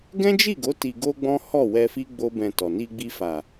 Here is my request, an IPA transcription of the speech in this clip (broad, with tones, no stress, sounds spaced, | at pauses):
ɡ ɛ̃˦ d͡ʒ i˦˨ ɡ o˨˦ t i˧ ɡ o˦ ɡ͡b ɔ̃˦ h ɔ˦˨ w ɛ˧ f i˦ ɡ͡b o˦ b ɛ̃˧ t ɔ˨ n i˧ ɡ͡b i˧ f a˨